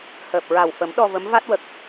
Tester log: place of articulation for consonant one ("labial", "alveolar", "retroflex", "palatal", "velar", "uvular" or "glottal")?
glottal